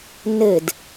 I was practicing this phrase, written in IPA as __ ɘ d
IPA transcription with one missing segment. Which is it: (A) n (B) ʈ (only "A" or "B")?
A